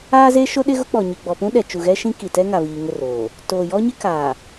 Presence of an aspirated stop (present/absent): absent